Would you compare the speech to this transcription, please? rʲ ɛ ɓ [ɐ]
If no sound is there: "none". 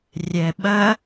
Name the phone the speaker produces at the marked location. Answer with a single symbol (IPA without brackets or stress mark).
ɐ